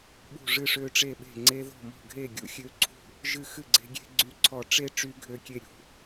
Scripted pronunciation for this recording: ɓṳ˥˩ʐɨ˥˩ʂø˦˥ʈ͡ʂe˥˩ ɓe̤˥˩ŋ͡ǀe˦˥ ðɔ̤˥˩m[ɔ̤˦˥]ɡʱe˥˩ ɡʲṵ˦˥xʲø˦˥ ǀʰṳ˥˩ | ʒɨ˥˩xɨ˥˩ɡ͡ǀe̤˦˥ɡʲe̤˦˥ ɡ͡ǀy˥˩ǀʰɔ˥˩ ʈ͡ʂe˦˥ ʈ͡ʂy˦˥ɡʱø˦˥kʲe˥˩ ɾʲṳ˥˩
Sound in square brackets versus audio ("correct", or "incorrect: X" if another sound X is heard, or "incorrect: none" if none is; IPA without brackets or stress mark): incorrect: ɔ̤˥˩